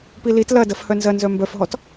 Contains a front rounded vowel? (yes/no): yes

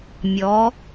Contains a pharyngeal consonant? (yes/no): no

